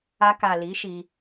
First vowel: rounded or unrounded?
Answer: unrounded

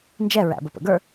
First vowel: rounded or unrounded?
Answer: unrounded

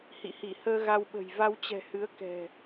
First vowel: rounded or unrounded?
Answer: unrounded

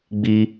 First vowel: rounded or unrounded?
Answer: unrounded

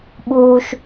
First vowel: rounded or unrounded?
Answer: rounded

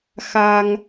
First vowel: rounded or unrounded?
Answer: unrounded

